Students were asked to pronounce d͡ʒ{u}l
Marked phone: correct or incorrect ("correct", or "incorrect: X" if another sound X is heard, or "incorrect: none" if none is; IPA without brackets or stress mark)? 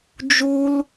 correct